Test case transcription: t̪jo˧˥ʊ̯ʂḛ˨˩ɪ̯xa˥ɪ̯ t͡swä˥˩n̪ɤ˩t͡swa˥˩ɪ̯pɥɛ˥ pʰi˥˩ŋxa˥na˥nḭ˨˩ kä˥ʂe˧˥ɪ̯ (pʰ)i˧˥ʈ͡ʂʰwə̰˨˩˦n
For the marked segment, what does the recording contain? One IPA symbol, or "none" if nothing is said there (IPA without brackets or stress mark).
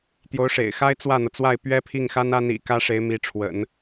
m